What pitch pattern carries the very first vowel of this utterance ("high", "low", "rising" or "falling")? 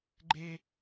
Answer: high